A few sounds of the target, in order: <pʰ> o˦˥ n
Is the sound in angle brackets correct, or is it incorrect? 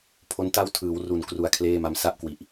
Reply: correct